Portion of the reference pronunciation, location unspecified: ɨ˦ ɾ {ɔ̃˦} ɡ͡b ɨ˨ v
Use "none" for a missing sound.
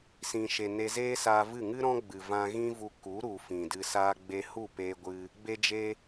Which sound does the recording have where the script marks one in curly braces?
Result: ɔ̃˦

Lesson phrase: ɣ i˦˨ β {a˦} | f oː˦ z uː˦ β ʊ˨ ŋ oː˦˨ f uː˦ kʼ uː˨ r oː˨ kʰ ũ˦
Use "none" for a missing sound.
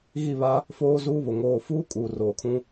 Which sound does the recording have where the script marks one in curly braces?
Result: a˦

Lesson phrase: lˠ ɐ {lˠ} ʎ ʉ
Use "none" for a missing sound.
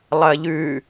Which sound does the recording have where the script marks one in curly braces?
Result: none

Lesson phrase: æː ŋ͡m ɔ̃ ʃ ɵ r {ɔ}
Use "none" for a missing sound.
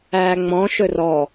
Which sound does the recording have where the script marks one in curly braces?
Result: ɔ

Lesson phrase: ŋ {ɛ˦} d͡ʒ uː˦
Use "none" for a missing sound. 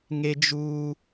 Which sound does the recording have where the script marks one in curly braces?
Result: e˦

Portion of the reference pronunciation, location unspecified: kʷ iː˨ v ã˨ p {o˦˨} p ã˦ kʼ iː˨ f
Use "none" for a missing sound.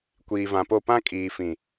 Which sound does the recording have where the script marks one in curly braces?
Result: o˦˨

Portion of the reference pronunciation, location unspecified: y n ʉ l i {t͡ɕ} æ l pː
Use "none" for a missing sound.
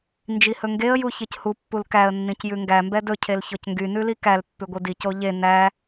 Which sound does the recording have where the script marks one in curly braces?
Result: k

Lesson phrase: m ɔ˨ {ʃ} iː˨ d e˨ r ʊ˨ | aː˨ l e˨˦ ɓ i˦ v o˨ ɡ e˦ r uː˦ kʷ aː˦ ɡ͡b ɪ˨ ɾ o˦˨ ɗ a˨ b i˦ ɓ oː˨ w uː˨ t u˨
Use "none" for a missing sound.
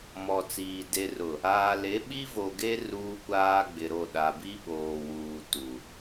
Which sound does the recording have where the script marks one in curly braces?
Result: t͡s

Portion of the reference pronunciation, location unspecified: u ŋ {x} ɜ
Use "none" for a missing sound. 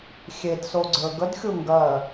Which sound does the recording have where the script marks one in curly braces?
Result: ɡ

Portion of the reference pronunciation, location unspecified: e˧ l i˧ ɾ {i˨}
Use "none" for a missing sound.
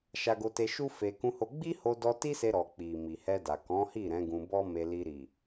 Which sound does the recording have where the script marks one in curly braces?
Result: i˨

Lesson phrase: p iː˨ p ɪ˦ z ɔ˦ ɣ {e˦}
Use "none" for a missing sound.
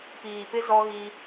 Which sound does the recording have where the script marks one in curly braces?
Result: i˦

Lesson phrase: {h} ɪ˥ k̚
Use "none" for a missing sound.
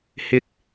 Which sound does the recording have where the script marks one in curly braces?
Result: h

